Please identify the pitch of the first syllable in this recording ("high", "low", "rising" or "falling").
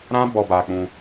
high